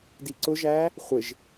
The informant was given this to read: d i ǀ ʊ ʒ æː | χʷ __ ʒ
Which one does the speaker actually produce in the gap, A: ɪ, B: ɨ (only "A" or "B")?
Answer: A